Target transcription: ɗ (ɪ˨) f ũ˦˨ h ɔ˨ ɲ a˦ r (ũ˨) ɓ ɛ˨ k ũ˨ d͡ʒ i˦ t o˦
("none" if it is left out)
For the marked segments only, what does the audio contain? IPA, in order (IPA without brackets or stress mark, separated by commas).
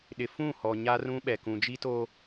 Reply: ɪ˨, ũ˦